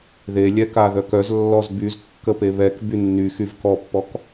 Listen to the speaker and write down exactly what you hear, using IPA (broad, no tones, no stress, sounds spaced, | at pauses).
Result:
ð e lʲ ɛ k a ð œ k œ z lː ɔ z b y z kː ə p e β ɛ k b y nː y x y v k ɔ pː ɔ k